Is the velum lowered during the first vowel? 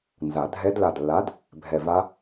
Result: no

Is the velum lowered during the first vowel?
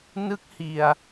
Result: no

